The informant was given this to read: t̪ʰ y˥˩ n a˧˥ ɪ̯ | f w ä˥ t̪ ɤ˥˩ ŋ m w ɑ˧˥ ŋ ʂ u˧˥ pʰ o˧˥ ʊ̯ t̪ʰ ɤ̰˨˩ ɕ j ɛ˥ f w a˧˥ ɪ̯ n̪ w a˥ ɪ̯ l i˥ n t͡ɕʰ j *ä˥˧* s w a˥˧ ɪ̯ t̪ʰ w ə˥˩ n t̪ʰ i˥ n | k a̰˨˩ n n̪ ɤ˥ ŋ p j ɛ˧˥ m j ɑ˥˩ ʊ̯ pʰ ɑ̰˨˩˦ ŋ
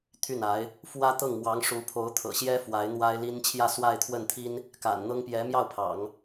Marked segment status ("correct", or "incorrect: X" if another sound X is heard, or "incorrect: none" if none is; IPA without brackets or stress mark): correct